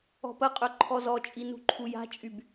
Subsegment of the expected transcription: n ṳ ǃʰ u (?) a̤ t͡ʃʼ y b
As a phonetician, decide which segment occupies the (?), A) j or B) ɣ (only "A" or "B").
A